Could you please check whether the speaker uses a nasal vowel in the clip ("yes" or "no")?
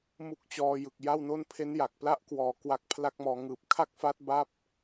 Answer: no